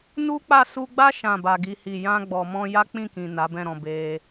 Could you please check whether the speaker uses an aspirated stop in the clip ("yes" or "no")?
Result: no